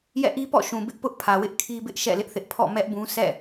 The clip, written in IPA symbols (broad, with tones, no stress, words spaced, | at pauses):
jɛ̰˦˨ʔi˦pɔ̰˦˨ ʃũ˨bɪ˦ʔpʊ˦ʔ pʰä˨wɪ˦ʔ kʰi˦bɪ˦ʔ ʃɛ̰˦˨lɪ˦ʔθɪ˦ʔ pʰɔ̰˦˨mɛ˦ʔbũ˦ sɛ̰˦˨